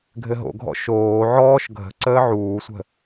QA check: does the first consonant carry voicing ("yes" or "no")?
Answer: yes